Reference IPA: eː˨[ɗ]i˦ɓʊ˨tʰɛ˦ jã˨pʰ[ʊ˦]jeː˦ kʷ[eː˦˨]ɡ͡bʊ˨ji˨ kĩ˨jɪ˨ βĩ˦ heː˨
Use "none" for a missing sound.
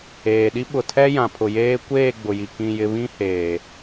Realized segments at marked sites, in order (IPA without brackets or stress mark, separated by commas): ɗ, ʊ˨, eː˦˨